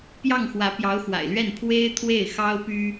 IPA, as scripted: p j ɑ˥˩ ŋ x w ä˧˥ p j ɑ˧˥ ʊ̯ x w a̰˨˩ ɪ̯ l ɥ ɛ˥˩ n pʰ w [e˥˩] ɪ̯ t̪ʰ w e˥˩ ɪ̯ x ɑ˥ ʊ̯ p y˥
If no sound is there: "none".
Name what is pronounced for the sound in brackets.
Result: e˥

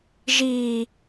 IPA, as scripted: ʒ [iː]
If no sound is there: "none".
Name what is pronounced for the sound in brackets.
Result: iː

